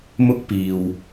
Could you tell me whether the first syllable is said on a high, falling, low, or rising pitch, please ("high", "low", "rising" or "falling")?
high